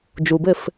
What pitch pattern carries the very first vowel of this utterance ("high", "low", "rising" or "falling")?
low